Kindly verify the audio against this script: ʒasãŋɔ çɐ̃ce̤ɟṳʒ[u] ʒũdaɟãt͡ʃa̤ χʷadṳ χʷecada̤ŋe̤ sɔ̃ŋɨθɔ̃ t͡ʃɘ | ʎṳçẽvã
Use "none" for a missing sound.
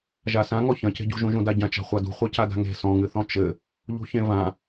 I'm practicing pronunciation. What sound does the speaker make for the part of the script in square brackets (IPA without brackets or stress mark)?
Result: ũ